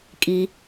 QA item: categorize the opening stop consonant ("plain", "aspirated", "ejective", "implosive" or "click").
ejective